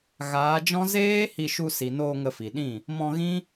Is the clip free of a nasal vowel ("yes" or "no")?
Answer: no